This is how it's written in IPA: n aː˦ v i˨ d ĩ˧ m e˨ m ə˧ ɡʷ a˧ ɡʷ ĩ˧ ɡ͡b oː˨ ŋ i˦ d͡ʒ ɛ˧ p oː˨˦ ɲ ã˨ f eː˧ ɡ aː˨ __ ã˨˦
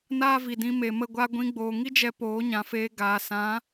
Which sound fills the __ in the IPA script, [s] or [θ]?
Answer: s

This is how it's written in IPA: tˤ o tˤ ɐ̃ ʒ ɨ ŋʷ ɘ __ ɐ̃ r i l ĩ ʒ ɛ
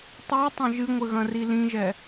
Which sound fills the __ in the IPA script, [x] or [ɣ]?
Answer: ɣ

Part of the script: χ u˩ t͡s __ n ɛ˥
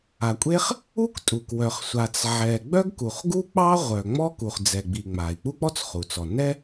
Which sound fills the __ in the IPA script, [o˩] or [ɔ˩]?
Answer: ɔ˩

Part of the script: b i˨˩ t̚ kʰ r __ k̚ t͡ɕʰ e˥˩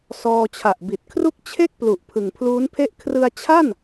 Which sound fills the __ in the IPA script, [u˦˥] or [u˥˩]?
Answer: u˥˩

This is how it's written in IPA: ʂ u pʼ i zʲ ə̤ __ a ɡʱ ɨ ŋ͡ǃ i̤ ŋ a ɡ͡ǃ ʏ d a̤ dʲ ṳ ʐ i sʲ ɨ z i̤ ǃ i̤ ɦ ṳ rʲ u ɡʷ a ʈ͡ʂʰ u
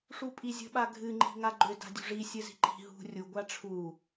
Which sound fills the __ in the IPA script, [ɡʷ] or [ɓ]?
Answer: ɓ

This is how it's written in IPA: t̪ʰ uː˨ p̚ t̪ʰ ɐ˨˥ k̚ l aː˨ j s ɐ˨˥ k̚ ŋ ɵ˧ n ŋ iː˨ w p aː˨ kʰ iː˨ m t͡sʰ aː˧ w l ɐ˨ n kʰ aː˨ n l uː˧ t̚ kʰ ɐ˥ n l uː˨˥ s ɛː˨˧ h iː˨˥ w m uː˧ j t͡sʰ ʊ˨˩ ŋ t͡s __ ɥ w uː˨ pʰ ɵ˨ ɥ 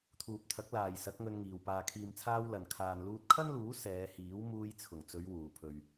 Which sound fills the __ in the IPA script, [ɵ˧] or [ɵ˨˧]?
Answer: ɵ˨˧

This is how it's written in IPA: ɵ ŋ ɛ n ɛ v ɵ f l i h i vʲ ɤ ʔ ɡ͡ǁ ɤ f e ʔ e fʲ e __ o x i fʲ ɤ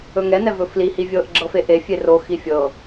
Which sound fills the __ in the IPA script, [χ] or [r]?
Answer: r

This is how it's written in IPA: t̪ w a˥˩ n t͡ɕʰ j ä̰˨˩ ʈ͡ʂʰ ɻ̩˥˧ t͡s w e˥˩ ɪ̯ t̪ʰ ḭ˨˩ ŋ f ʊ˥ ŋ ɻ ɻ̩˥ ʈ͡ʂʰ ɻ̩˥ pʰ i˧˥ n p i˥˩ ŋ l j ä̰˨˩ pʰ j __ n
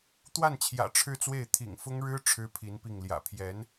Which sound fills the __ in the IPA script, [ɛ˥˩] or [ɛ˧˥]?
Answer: ɛ˧˥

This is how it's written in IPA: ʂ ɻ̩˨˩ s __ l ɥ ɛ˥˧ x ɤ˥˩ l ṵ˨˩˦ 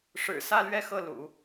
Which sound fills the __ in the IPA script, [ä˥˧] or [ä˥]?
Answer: ä˥˧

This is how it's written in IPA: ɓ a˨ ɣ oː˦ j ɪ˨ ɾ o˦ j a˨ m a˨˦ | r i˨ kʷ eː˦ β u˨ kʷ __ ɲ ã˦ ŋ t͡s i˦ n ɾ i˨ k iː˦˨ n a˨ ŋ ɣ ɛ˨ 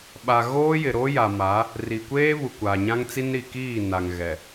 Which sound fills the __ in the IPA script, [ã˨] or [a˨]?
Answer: a˨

